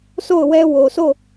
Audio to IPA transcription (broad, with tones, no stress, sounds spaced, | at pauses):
sʰ o˦˨ ʊ̯ w ɛ˦ w o˨ sʰ o˦˨